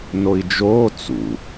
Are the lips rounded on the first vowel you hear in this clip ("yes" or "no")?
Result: yes